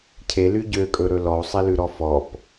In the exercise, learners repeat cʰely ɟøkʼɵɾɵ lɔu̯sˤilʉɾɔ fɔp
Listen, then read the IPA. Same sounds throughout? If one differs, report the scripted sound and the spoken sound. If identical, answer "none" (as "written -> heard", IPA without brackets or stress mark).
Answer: none